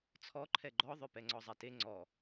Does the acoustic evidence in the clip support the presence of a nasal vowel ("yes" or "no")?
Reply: no